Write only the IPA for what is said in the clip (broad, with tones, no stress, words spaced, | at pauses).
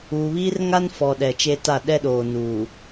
uː˨βiː˦r ŋa˦n fɔ˨ ɗɛ˨t͡ʃe˦ta˦˨ ɗɛ˦ɗoː˨ nuː˨